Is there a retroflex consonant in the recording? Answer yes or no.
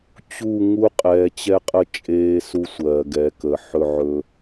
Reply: no